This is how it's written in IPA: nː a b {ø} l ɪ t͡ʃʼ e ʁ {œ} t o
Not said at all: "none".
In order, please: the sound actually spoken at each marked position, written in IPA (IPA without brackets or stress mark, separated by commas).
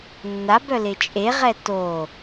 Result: œ, ɛ